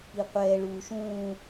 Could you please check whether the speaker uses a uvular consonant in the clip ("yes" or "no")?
yes